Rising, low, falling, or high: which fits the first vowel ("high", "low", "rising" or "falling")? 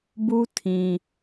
high